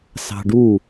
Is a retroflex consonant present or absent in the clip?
present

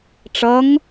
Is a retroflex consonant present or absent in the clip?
present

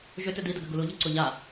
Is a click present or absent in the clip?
present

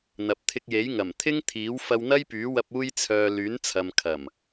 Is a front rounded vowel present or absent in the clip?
present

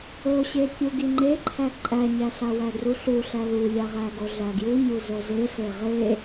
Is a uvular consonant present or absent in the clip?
present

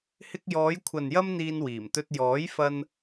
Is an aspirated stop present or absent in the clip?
present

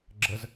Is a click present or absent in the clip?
present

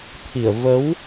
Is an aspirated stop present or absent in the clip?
present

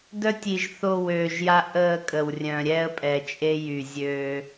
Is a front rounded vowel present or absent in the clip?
present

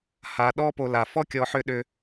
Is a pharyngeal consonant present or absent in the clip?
present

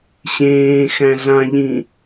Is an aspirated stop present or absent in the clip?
absent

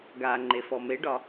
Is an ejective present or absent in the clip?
absent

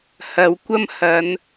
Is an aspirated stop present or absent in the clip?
absent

